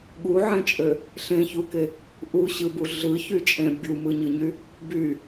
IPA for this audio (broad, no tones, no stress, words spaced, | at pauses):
ɠuʕẽt͡ʃʼø | ɬẽçuke | ʔuɕɯbu ɮɯçyt͡ʃʼẽ bʲumɯɲɯɲy | by